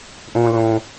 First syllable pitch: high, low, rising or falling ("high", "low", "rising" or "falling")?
low